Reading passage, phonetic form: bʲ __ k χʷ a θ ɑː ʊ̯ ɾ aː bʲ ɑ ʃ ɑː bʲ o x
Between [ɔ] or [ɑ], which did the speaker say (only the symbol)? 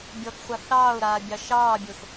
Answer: ɔ